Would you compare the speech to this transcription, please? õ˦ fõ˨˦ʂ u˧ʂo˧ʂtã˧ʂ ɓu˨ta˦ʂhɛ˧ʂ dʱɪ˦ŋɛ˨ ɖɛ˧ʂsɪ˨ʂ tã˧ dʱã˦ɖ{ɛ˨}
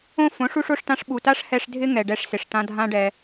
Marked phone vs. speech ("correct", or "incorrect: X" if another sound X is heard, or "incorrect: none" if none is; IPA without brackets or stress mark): incorrect: ɛ˧